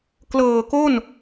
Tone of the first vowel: low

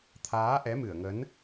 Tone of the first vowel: rising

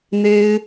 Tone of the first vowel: high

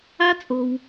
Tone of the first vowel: high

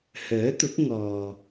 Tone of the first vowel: rising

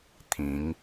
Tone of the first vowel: rising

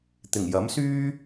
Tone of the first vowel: low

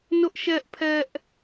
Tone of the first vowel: high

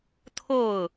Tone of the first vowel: falling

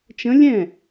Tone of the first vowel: rising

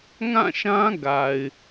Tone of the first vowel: falling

